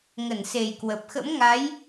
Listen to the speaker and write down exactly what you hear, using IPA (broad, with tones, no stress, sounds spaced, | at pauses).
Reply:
ŋ ə˧˩ n s e˨˩ j k w ə˨˩ p̚ x ə̰˧˥ m ŋ a˨˦ j